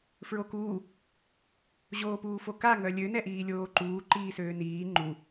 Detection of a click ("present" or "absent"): present